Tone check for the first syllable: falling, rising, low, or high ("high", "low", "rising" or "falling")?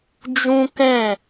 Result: high